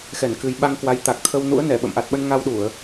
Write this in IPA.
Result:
x ɛ˧˩ n k ɨ˨˩ j ɓ a˧ ŋ k w a˨˦ j t̪ a˨˩ k̚ t̪ʰ ə˧ w n ṵ˧˥ ə̯ n ɛ˧˩ ɓ ə̰˧˨ m ʔ a˨˩ t̚ ɓ ə˧ n ŋ a˧ w ɗ u˧˩˨ ə̯

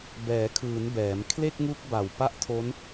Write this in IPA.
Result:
b ɛː˩˦ kʰ ɯː˩˦ n b ɛː˩˦ m kʰ l e˥˩ k̚ ŋ u˦˥ k̚ b a˨˩ w p a˥˩ ʔ tʰ o˦˥ n

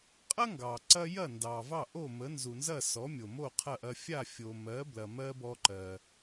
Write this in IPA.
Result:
qʼ ɐ˥ ŋ ɡ ɑ˩ ǀ ɐ˧ j ɐ˥˩ n d ɑ˩ v ɑ˥˩ ʔ o˥˩ m ə˩˥ n z u˩ n z ɐ˥˩ s ɔ˩˥ mʲ o˩ m o˥˩ qʰ ɐ˥˩ ʔ ɐ˧ fʲ a˥˩ fʲ o˩ m ɜ˩˥ b l ɐ˩ m ɜ˥ b ɔ˧ ǃ ɜ˩

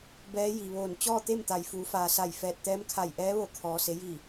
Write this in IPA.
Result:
b ɛː˧˥ j i˩ ʋ oː˧˩ n t͡ɕ ɔː˥˨ t̪ e˥˨ m t̪ a˩ j f uː˩˧ f aː˩ s a˧˩ j f ɛː˧˩ t̚ t̪ ɛː˧˥ m kʰ a˧˩ j ʔ ɛː˧˥ ʋ o˧˩ kʰ ɔː˩ s e˩˧ j i˧˩

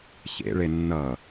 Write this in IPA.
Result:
ç ḛ ɭ e nː ʌ

